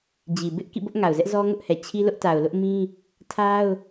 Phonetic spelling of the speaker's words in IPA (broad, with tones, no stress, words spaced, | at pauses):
d͡ʑi˨ bɪ˦ʔ kḭ˦˨bʊ˦ʔŋa˨ʊ̯ zɛ˦ʔzɔ˦ ŋʊ˦ʔhɛ˨ t͡ɕʰi˦lʊ˦ʔ ta˨ʊ̯lʊ˦ʔmĩ˦ | tʰa˦ʊ̯